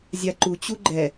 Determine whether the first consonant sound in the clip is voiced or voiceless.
voiced